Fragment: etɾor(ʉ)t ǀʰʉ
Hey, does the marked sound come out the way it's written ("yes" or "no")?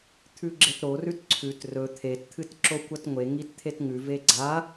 yes